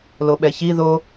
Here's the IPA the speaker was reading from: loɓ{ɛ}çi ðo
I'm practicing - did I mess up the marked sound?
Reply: no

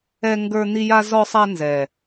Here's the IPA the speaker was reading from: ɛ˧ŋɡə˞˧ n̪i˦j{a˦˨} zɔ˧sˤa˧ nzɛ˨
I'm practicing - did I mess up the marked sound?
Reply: yes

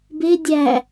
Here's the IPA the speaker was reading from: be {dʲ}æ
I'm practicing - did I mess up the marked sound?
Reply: no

